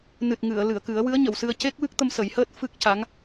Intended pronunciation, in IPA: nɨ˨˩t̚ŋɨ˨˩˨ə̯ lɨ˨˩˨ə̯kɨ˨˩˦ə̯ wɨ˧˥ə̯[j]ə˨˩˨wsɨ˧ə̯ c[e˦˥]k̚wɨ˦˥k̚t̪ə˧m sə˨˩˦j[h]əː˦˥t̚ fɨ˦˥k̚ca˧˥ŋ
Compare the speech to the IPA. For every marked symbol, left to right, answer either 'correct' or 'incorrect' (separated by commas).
incorrect, correct, correct